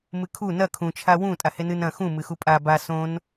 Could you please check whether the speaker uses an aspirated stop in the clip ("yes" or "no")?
yes